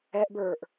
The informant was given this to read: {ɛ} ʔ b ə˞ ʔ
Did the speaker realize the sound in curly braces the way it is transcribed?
yes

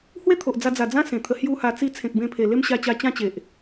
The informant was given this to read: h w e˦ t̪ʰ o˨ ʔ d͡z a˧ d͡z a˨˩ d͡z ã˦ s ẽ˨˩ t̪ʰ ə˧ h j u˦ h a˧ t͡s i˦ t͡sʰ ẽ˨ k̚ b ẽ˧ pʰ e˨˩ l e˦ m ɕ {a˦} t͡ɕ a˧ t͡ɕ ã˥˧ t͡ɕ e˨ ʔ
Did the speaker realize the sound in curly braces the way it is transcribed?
no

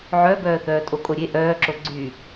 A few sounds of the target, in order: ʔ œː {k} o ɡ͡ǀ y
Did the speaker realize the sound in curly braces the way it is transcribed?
no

